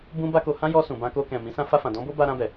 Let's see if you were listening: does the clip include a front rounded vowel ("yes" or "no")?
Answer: no